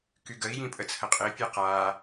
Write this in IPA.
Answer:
k y ɡ ə i̯ j ĩ pʼ ə t͡sʰ ə qʼ e pʲ a q a

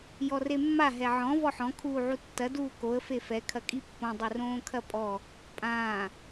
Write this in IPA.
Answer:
j ɔ r e mː a ɦ ɛ ʕ ɔ̃ v ɔ ħ ɔ̃ kʰ uː ʕ u tː ɐ d uː k o ə̯ f e f ɛ kʰ ɐ kʼ i pː õ dˤ ɨ r õː kʰ ɐ pʼ ɔ | pʼ ãː

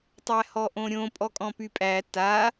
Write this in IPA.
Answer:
tˤ æ h ɔ ʔ õ ɾʲ õ pʼ ɔ kʼ ɔ̃ p y pʼ æ t a

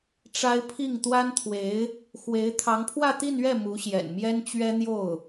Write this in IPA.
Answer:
ʈ͡ʂ a˥ ɪ̯ pʰ i˥˩ ŋ t̪ w a˥ n t̪ʰ w e˧˥ ɪ̯ | x w e˧˥ ɪ̯ t̪ʰ ɑ˧˥ ŋ pʰ w ä˥˧ t̪ i˥˧ n ɥ ɛ˥˩ m u˧˥ ɕ j ɛ̰˨˩ n m j ɛ˥ n t͡ɕ ɥ ɛ˥ n̪ j o˥˩ ʊ̯

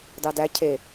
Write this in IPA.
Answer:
d ɑ d æ cʰ e

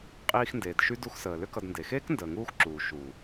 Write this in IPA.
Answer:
qʼ iː˧ x n d eː˨ d ʃ y˦ d u˧ x s əː˨ l ʏ˦ k ʌ˧ d n d e˨ x eː˦ k n d əː˨ ŋ uː˧ x ǁ uː˨ ʃ uː˨

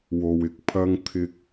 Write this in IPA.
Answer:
w o˧ w ɪ˨˥ k̚ pʰ ɐ˥ ŋ t̪ʰ ɪ˥ k̚

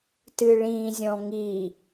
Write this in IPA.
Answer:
t ɨ ɭ ĩ zʲ ɔ̃ ŋ i

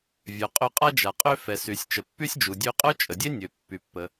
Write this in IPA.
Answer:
vʲ œ˩ qʼ ø˧ qʼ a˥ d͡ʒ a˩ qʼ ø˧ f ɛ˩ s y˩ sʲ t͡ʃ ə˩ pː y˥ sʲ d͡ʒ u˩ dʲ ø˧ qʼ œ˥ t͡ʃʼ ə˩ dʲ e˥ nʲ ø˩ pː y˩ pː ə˩

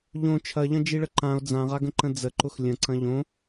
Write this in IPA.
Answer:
ʎ õ t͡ʃʰ ɐ ʎ ɐ̃ d͡ʒ i ɭ ə ǃ ã o̯ d͡z ã ʁ a ɡ ə̃ ǃ ə̃ d͡z ə ǃ ʊ x lʲ ə̃ ǀ ɐ̃ ʎ õ

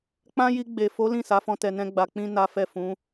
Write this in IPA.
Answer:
k͡p ã˦ j i˧ ɡ͡b e˨ f o˨˦ l ĩ˦˨ s a˨˦ f ɔ̃˧ t ɛ˧ n ɛ̃˦ ɡ͡b a˧ k͡p ĩ˦ n a˦ f ɛ˦˨ f ũ˨˦

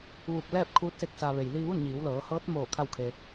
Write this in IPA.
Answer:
ʋ uː˧˩ k̚ l ɛː˥˨ p̚ kʰ uː˧˥ t̚ s e˧ k̚ s a˩ ʋ e˩ j l iː˧ ʋ u˥˨ n ɲ iː˩˧ w l ɤː˩˧ h ɤː˧˥ t̚ m oː˧˩ kʰ a˥˨ w kʰ e˧

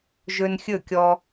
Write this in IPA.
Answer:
ʒ ɵ˧ n xʲ ɵ˦˨ kʲ ɔ˧

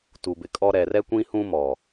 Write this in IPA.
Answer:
t u˨ b ɪ˨ kʼ ɔ˦ ɾ ɛ˨ r ɛ˦ kʷ ĩ˦ h ũ˦ m ɔ˨

